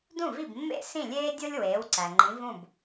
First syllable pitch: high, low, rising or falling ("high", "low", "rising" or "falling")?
falling